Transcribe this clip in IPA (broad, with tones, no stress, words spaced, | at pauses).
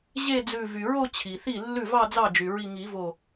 ʑe˥˧d͡zʉ˧˩ vy˩ɹo˥˧ t͡ɕʰi˩ θi˥˩lːʉ˥˩vɑ˥˧ d͡zɑ˥˩d͡ʒy˩ɹi˧˩ ŋi˨˩˦vo˧˩